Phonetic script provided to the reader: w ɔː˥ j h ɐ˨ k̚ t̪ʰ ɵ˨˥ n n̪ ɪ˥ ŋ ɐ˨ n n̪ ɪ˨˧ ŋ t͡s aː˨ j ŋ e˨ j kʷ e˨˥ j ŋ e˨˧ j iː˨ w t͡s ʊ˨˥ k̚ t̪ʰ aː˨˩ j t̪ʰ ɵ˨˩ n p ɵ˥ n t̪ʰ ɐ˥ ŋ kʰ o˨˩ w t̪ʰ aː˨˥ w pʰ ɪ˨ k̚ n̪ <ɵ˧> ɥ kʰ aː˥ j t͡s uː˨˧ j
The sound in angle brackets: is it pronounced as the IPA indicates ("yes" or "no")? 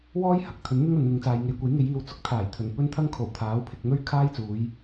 no